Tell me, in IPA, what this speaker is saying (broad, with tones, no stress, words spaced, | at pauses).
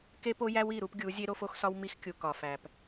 ke˦po˦jæ˦w i˦˨ɾu˦pɡʲu˨˦ zʲe˦ɾo˦fo˦xsɒ˦w mi˦x kʲu˨kɒ˨fæ˨p